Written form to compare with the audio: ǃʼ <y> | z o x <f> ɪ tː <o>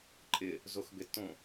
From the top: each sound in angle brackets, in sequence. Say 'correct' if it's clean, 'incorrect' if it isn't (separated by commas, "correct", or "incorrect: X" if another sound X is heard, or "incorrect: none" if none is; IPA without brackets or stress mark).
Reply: incorrect: ɪ, incorrect: b, incorrect: õ